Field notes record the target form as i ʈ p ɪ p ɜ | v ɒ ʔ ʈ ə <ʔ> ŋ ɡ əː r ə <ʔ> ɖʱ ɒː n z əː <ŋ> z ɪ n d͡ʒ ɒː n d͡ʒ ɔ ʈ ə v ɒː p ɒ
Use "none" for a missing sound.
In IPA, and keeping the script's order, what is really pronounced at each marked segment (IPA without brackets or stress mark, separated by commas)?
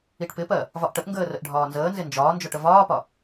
ʔ, ʔ, n